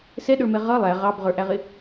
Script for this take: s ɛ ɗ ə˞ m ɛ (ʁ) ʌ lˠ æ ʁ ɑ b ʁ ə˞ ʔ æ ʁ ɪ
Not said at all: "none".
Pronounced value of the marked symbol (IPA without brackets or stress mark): ʁ